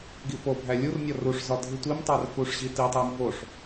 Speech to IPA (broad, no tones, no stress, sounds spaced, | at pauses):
ɡ i f o bʱ æ lʲ u r nʲ ɒ r u ʂ z ɒ dʱ i tʷ i m tˤ æ r f u ʂ ʑ i t i tˤ æ m v o ʂ